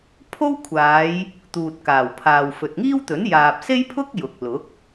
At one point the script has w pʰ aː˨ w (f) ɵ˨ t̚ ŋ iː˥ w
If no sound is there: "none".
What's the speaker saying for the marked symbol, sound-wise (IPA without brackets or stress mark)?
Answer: f